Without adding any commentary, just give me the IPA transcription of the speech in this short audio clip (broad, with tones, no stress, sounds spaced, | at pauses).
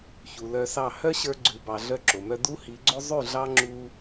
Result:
ç u˨ l œ˧ s ɑ˦˨ h œ˦ ɕ ə˞˧ ɡ͡ǀ ʉ˨ b ɑ˨ ɮ œ˦ ǁ o˨ m œ˦ d u˦ h i˨˦ ɡ͡ǀ o˦ zˤ ʉ˦˨ ɮ ɑ˦ ŋ͡ǁ u˧